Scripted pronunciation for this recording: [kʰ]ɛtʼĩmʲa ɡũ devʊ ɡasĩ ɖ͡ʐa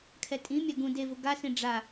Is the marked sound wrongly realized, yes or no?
no